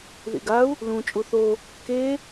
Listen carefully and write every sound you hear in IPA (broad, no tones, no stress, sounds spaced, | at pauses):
ð ḭ ɡ a u̯ | l ũ t͡ʃʼ u θ o | k e